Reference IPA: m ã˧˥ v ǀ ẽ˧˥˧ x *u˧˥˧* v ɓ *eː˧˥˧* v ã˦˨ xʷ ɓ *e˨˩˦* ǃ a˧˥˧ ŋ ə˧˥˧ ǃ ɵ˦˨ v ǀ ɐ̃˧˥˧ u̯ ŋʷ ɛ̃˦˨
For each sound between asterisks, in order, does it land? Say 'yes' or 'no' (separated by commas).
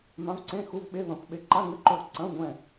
yes, no, no